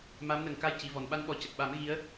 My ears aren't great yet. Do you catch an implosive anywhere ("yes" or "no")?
yes